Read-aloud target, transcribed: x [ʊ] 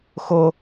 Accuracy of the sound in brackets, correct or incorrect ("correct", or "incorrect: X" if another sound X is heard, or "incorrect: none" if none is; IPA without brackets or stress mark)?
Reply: correct